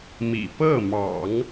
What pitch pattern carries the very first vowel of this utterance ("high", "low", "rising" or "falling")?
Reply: low